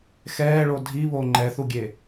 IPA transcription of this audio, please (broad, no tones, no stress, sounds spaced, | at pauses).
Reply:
x ɛː ɭ o dʱ i β o ŋ͡ǃ ɛ θ u ɡʲ e